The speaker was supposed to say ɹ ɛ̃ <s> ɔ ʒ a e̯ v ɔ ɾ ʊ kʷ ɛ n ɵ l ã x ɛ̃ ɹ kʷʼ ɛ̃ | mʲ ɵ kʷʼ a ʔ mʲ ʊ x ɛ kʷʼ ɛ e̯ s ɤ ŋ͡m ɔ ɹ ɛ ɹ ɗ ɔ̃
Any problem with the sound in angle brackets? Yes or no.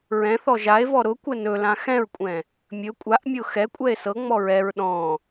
yes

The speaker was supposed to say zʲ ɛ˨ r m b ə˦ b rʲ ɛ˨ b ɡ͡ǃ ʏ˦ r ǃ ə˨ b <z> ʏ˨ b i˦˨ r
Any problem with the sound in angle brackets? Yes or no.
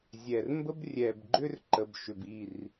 yes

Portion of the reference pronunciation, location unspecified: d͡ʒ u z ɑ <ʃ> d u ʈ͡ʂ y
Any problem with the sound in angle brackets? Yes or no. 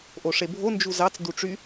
yes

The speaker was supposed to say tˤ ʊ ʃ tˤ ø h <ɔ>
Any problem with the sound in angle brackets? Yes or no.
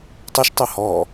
no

